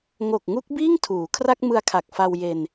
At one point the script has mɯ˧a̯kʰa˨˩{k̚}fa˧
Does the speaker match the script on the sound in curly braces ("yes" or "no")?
yes